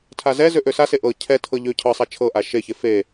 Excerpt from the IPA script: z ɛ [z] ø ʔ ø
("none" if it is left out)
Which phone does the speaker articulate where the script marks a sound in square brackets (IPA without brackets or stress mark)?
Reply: z